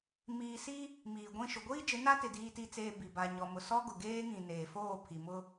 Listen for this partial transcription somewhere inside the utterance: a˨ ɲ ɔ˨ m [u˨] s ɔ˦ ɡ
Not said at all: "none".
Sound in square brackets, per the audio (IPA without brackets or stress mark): ʊ˨